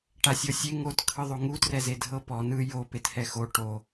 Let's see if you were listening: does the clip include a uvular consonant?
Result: no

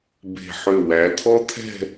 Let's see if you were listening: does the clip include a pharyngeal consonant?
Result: yes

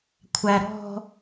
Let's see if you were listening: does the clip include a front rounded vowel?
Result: no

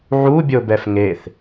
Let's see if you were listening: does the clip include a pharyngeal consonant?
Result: yes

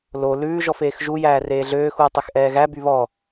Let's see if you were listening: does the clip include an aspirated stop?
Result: no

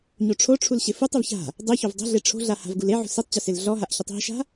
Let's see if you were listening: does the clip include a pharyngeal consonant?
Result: yes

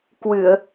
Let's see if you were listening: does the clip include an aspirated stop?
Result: no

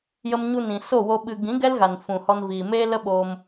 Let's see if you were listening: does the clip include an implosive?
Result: yes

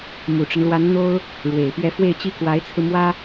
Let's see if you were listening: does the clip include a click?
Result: no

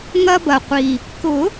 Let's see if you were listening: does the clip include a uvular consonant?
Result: yes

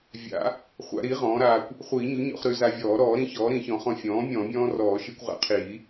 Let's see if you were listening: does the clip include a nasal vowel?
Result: yes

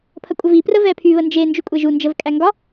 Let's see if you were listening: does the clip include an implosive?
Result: no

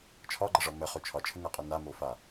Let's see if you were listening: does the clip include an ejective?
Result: yes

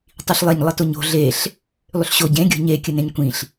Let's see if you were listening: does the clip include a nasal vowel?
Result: yes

